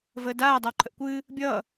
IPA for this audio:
vəːdaː dˤawǃʰəʔkʷɨː | bʲʌː

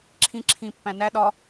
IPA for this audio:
ǁʰĩ ǁʰĩ pːæ̃næ ɗɒ

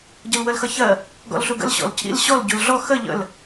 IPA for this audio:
ɟəlwəlxʌçɜ | ɡɔ̰lɬuɡə̰l ɕɔ̰lcʰḭl ɕɔl ɟulɮɔ xə ʎə̰l

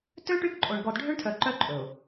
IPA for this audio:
tø˦ ʈy˦kǃʼo˨ɳ ɡɔ˨dɖʱø˦ɳtʰœ˨ ǃœ˦ ǃʼɵ˨ʊ̯

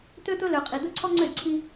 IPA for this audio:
t̪ø˦t̪ɵ˦ lø˨qʼi˨ d̪ɵ˦ ǀʰɔ˦ŋ͡ǀø˦˨dǀʰi˦

